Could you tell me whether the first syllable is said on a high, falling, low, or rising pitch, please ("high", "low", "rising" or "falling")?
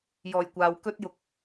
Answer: low